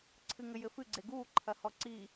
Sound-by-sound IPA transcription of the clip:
ǀʰ ɨ ŋ ɘ j ɘ f ɨ ɡ͡ǀ e ɡ uː ǃʰ ɐ h ɔ ǀ i

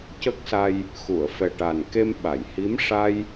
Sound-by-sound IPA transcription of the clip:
c ə˦˥ k̚ s a˧ j | x u˨˩˨ ə̯ f ɛ˨˩ ʈ a˨˩ n k e˧ m ɓ a˨˩˨ j h i˧˥ m ʂ a˧ j

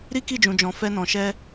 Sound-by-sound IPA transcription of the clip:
ɾ i˦ k i˦˨ d͡ʒ ũ˨ d͡ʒ ɔ̃˨ f ɛ˧ n ɔ̃˨ ʃ ɛ˧

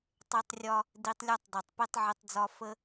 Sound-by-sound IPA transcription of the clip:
tˤ e˦ tˤ rʲ ɒ˦ | d i˧ tˤ lʲ ɒ˦ tˤ dˤ e˨ tˤ p i˦ tˤ ʕ e˧ tˤ d͡z ɒ˧ f ə˧

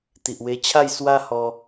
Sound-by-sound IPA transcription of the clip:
t̪ i˨ ʔ w e˧ t͡ɕʰ a˥˧ j s w a˦ h ɔ˧

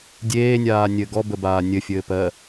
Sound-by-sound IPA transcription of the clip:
dʲ eː nʲ aː nʲ ɘ ɡ ɔ b ə b aː nʲ ɘ fʲ ɘː p ɜ

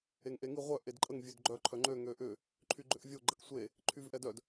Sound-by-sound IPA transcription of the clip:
e ŋ ʔ e ŋ i ʁʷ œ ʔ e d ǃʼ ə ŋ vʲ ø d ɡ͡ǃ œ ǃʰ œ ŋ͡ǃ ø ŋ ø ʔ ʏ | ǃʰ y ɡ͡ǃ ʏ ʔ vʲ o ɡ͡ǃ ə k sʷ e | ǃʰ y v ʔ ɛ d œ d

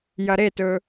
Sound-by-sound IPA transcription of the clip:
j ɐ ɾ e t ɵ

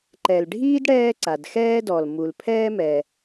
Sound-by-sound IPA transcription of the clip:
ǃ ɛ˩ l ɖʱ iː˥ d ɽ ɛː˥ ǀ a˩ d x ɛː˥ d ɔ˩ l m u˩ l pʰ ɛː˥ m ɛ˩

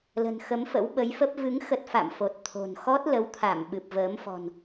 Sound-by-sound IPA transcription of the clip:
l ə̤˨˩ n x ə˨˦ m f ə̰˧˥ w ɓ ə˨˦ j f ə˦˥ p̚ v ɨ˨˦ ŋ x ə˦˥ t̚ f a̰˧˨ m f o˨˩ t̚ t̪ʰ o̤˨˩ n x ɔ˦˥ t̚ l ə˨˦ w t̪ʰ a˧˩ m ɓ ɨ˨˩ p̚ v əː˨˦ m f ɔ̤˨˩ n

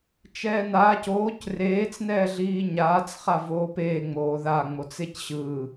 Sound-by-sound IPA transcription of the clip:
t͡ʃ ɛː n aː c oː c r eː t͡s n ɛː ɮ iː ɲ aː t͡s χ a v oː p eː ŋ͡m oː ð a ŋ͡m o t͡s e c ɕ ɯː

